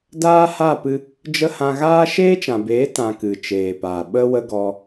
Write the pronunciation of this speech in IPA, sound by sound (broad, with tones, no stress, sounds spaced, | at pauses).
d aː˦ h a˦˨ p ɨ˧ | d͡ʒ ə˧ h ã˧ ɣ aː˦ ʃ eː˦ t͡ʃ ã˨ b eː˨˦ t ã˨ k ɨ˨ t͡ʃ eː˨ p aː˨ ɓ ə˦ w ə˦ ɡ ɔ˧